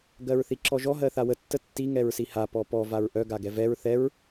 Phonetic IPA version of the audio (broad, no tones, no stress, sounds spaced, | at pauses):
ɡ ɜ ɹ θ i ǁ ɔ ʒ ɔ ɦ ɜ θ a w ə tː ə tː i ŋ ɛ ɹ s i h a p ɔ p ɔ v a ɹ ʔ œ ɡ a ɡ ɛ v ɛ ɹ θ ɛ ɹ